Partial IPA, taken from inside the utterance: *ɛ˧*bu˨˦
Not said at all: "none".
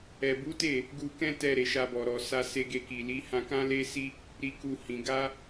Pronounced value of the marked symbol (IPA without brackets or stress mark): ɛ˨